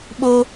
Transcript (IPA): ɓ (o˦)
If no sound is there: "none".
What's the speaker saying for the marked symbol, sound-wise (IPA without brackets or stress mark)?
o˦